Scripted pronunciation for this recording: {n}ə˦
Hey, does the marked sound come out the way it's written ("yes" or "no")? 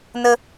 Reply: yes